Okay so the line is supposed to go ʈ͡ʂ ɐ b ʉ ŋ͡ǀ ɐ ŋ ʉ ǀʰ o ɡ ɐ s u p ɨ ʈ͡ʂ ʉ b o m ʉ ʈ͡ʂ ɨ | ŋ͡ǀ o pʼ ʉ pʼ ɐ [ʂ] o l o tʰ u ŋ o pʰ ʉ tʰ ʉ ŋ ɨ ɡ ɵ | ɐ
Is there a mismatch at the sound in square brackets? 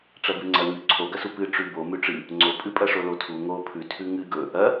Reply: no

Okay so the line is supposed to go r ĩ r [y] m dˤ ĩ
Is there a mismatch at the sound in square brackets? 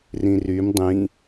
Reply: no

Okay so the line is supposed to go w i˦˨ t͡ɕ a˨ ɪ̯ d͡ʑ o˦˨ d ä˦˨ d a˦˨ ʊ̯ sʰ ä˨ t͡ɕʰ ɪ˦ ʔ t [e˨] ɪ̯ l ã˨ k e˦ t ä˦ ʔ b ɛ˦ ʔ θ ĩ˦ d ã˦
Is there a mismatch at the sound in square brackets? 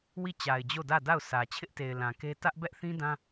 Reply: no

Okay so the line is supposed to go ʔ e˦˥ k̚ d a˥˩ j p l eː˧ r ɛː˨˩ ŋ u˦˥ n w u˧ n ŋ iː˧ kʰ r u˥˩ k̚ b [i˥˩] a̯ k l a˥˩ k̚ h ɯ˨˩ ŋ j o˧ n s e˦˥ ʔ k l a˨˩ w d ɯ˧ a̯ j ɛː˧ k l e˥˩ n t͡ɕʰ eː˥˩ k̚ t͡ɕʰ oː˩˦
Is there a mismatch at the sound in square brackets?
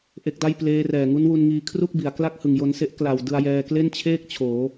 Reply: yes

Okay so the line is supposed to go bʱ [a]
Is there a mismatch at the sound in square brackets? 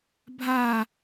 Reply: no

